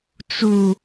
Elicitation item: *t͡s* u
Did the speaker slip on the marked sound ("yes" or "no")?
no